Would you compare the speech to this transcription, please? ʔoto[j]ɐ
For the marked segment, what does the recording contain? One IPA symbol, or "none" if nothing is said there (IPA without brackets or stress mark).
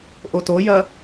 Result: j